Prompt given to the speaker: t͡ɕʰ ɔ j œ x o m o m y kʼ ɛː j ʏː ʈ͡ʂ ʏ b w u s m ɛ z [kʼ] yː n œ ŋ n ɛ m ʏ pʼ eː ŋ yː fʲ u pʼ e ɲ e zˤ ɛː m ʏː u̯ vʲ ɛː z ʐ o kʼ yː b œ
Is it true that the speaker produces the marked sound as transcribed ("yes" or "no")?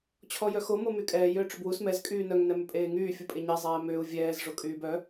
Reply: yes